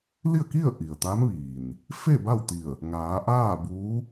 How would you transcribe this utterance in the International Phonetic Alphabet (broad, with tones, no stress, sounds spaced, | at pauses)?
l i˥˨ ə̯ k i˥˨ ə̯ ʔ i˩ ə̯ t̪ a˧˥ m ʋ iː˩ n | f e˥˨ b a˥˨ w t̪ i˧˩ ə̯ | ŋ aː˩˧ ʔ aː˥˨ b uː˧˥